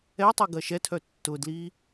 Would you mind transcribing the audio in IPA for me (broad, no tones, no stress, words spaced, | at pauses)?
ɛtˤi ɡɐʃɛtʰœ tːʊdli